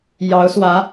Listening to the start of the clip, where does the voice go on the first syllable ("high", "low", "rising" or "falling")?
rising